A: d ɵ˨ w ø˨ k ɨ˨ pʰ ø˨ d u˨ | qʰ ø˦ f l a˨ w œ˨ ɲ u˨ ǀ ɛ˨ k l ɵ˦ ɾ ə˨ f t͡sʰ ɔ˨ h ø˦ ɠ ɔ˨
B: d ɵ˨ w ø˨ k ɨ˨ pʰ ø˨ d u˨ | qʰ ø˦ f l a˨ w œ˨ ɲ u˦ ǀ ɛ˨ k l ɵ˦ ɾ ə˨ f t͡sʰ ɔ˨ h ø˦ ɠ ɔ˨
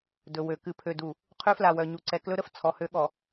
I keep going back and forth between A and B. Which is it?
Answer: A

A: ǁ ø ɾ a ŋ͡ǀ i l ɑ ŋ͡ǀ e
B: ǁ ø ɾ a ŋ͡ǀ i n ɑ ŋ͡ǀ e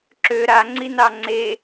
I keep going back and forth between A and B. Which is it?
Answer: B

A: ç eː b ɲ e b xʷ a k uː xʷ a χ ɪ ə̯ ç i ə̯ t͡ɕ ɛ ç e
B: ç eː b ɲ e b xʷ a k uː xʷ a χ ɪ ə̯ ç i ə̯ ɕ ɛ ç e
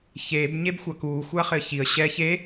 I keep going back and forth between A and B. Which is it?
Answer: B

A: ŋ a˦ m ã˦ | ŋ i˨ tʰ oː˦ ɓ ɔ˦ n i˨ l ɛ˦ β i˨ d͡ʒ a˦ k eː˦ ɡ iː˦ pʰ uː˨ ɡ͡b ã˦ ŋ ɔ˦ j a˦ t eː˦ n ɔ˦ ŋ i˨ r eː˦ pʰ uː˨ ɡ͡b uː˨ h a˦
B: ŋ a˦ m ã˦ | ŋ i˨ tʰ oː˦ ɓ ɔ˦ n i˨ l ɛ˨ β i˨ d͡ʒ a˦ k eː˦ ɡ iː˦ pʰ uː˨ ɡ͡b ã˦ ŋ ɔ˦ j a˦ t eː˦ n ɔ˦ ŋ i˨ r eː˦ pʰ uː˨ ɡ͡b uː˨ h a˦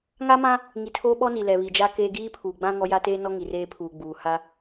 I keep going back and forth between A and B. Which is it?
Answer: B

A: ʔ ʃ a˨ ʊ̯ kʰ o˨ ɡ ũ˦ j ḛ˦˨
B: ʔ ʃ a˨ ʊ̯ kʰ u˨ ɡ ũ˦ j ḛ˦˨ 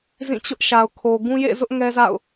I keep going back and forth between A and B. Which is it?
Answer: A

